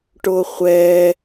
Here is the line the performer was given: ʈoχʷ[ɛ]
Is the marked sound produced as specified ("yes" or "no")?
yes